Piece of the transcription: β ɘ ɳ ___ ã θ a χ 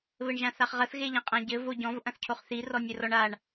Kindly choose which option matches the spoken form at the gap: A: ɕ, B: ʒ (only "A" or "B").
B